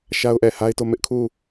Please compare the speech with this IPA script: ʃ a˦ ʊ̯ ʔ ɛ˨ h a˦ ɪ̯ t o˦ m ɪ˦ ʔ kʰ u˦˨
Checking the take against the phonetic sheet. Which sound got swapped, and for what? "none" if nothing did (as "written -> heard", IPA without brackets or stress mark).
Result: none